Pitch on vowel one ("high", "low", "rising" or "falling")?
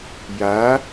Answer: rising